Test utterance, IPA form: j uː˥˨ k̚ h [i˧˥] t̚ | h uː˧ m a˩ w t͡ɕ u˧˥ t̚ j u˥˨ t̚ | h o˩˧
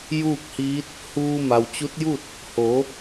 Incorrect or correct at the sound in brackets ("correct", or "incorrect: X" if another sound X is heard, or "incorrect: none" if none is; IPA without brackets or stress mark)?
incorrect: iː˧˥